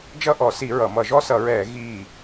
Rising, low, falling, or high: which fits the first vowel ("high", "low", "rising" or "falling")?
falling